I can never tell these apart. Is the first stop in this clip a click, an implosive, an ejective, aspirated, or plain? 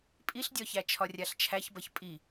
ejective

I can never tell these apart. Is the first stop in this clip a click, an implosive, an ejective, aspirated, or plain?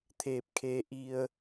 aspirated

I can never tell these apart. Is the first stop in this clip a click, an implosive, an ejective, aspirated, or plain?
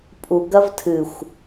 ejective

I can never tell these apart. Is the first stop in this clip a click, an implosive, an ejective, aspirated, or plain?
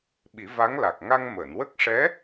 implosive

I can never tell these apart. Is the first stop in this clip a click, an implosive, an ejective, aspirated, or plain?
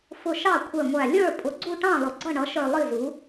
aspirated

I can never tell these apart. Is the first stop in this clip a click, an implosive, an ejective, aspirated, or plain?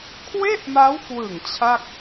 aspirated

